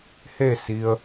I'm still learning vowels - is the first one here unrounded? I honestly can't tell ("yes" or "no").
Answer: yes